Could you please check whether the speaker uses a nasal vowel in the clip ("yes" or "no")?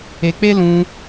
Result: yes